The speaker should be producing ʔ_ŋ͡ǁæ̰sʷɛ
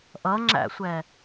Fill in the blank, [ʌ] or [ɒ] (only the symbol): ʌ